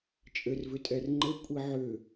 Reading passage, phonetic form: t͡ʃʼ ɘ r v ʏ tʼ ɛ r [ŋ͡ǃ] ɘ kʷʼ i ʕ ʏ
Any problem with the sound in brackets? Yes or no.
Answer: no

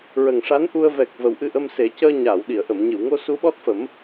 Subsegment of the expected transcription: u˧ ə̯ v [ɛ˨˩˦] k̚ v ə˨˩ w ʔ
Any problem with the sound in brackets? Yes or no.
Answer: yes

